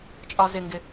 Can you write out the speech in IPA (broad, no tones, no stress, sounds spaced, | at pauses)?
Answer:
t͡ʃʼ ɒ z ɪ ŋ ɡ ɪ